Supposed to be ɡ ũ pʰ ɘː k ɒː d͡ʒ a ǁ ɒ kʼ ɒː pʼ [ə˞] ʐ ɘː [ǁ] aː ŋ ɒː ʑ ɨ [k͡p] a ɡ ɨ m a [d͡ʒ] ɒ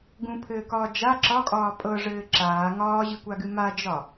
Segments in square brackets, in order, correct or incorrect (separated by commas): incorrect, correct, incorrect, correct